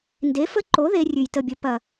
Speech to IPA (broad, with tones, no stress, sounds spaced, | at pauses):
n d e˨˥ f ə˦˥ ǃ o˨˥ ð e˦˥ rʲ ʉ˨˩ j t ə˦˨ bʲ ə˨˥ p ɐ˨˩